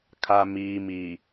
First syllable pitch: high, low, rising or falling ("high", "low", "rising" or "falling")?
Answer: low